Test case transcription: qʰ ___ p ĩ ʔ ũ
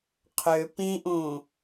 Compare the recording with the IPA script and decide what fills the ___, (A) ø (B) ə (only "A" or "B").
A